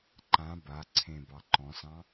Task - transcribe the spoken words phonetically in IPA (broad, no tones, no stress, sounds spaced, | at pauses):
ǃ ã b a ǀʰ ẽ b ɑ ǃ ɔ̃ s ɑ̃